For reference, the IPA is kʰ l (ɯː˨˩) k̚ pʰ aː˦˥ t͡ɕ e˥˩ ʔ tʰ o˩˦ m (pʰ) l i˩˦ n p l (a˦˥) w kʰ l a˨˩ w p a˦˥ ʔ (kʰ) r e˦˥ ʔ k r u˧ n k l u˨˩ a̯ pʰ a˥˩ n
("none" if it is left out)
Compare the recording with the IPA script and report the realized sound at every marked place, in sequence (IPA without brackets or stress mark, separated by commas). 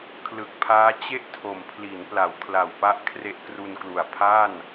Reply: ɯ˨˩, pʰ, a˩˦, kʰ